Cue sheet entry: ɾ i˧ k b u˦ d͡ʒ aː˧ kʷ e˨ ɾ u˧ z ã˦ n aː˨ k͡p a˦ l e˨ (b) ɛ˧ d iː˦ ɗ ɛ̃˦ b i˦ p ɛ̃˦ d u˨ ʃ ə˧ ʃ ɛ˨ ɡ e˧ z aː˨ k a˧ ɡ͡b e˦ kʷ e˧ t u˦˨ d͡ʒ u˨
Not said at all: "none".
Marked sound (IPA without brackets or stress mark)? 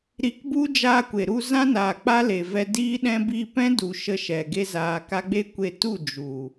v